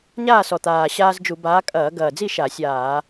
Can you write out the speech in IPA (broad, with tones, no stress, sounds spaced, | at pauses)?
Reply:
ɲ aː˥˨ s ɔ˨˩ t̪ aː˨˩ ɕ aː˦ z d͡ʒ u˧˩˧ b aː˨˥ kʼ ɐː˧˩˧ ɡ ɐː˨˩ d͡z i˥˨ ʃ a˧˩˧ sʲ aː˧˩˧